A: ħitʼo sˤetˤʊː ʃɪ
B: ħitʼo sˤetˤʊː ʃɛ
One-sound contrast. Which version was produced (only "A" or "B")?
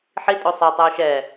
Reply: B